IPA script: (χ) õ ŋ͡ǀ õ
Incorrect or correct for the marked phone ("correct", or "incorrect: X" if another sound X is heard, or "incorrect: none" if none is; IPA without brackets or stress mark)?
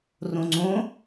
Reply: incorrect: r